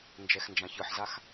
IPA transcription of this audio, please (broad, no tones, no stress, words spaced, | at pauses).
nd͡ʒɛxnd͡ʒãçɯħzax